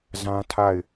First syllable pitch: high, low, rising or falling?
high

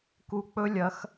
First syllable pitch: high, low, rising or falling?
low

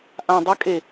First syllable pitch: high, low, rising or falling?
low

